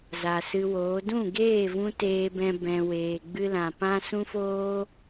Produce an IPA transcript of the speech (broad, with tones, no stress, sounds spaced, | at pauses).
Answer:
z a˨ s ɨ˧ w oː˨˦ d ũ˦˨ ɡ eː˦˨ v ũ˧ t eː˦ b ɛ̃˦ b ɛ̃˧ w eː˨ ɡ͡b ɨ˦ l ã˨ p ã˦ s ũ˦ f oː˦